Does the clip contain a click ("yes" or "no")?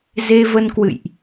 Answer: no